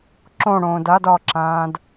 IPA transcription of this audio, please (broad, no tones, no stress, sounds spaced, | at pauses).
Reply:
ǁ õ ɽ õː d a d ɒ ǁ ãː d